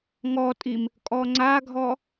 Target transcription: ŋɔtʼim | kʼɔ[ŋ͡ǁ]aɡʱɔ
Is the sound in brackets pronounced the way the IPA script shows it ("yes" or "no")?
no